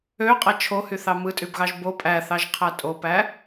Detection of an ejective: present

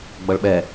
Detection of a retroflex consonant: present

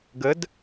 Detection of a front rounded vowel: absent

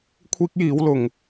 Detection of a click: absent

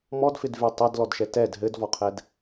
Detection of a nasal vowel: absent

